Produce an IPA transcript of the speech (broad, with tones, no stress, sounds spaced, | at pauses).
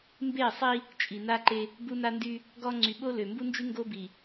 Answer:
m b e˦˨ sˤ i˦ | t͡ʃʼ i˨ n a˦ ǃ e˦ | b u˦ n a˦ n d y˦ | ɡ ɔ˦ ŋ͡ǀ y˨ ɓ o˦ l ø˨ m b u˦ n d͡ʒ y˦ ŋ ɡ o˦ b i˨